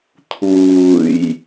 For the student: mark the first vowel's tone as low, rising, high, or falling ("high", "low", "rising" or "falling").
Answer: low